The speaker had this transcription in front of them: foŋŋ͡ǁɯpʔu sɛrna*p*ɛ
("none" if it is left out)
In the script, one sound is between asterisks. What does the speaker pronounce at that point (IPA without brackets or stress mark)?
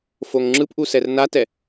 t